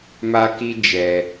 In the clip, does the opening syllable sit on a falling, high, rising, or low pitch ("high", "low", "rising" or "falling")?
high